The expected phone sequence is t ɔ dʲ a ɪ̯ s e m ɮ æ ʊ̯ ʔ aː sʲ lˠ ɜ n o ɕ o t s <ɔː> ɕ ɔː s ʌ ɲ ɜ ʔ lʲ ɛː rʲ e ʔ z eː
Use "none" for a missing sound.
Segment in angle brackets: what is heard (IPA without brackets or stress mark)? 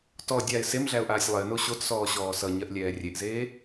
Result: ɔː